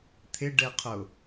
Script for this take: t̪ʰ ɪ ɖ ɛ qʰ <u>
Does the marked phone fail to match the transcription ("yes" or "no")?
yes